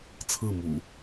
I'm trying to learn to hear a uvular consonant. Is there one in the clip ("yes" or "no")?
no